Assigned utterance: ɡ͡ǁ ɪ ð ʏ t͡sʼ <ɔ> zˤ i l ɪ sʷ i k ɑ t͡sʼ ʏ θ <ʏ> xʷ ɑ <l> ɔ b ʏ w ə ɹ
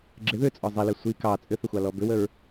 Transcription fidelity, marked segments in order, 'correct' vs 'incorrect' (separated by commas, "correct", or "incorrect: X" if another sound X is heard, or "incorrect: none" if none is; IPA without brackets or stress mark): correct, correct, correct